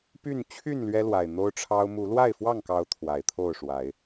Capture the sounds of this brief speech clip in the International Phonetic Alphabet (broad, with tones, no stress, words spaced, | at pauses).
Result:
py˥˨n t͡ɕʰy˥˨n lɥɛ˦lwa˨˩ɪ̯ n̪o˦ʊ̯ʈ͡ʂʰɑ˦ʊ̯ mu˨˦lwa˥˨ɪ̯fwɑ˥˨ŋkɑ˨˦ʊ̯ t̪ʰwa˨˩ɪ̯t̪ʰo˥˨ʊ̯ʂwa˨˦ɪ̯